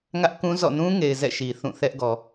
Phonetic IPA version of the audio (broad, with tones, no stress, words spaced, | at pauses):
ŋä˦ʔkũ˦ zɔ̰˦˨ nũ˦ŋe˨ɪ̯ zɛ̰˦˨ʃi˨ θũ˦˨θɛ˦ʔ ɡɔ˨